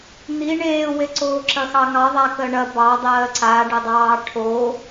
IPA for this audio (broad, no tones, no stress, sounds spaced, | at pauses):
n̪ i ɳ eː w e ǀ oː ǁ ɐ x ɑ ŋ ɑ ðˤ a k ɜ ɳ ɐ b ɑ dˤ ɜː ǀ a ɖ ə dˤ ɑː ʈʰ o